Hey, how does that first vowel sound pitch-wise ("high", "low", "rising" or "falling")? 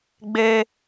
high